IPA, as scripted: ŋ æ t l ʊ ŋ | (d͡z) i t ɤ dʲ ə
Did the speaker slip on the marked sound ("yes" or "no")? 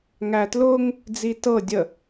no